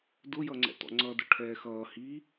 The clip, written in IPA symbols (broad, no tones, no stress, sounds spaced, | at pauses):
d ʊ j ʌ ŋ͡ǀ ɛ̰ t ɔ̰ ŋ͡ǀ ʌ d ʊ ʈʰ ɛː x ʌː h iː